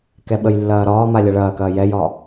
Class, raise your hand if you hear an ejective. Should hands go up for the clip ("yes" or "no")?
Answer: no